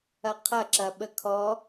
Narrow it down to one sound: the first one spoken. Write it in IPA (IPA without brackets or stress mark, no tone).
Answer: ɐ